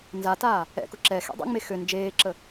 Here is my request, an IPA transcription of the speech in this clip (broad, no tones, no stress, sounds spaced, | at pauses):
n z a t aː | ɛ̰ k ʊ ǁ ɛ x ɛ̰ dˤ ə̰ ŋ͡m e x ø n d͡ʒ eː ǁ ə